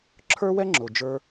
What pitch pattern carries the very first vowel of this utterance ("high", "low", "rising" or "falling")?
high